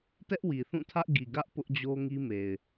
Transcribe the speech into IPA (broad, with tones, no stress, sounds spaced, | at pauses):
t ɛ˦ ʔ w i˨ θ ũ˦˨ tʰ ä˦ ʔ ɡ i˨ ɡ ä˦ ʔ p ʊ˦ ʔ d͡ʑ o˦ ŋ i˦ m e˨ ɪ̯